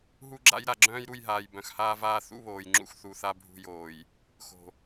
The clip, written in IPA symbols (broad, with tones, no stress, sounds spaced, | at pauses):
ɦ u˦ ɡ͡ǁ a̰˦ j ɾ a˨ ɡ͡ǁ œ̃ː˦ j ɾ u˦˨ j ɦ aː˨ j b œ̃˨ x h aː˦ v aː˦ θ ṵ˦ β oː˨ j ŋ͡ǁ ṵ˦ x θ u˨ θ a˦ bʱ ṳ˦˨ j oː˨ j | x o̤˨